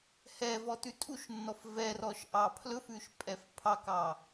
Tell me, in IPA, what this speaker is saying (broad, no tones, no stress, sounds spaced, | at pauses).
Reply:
h ɛ v ɔ t ʉ tʼ u ʃ nː ɔ f v ɛ r ɔ ʃ ʔ ɑ pʰ l ɵ f ʉ ʃ pʼ ɛ f pʰ ɑ k ɑ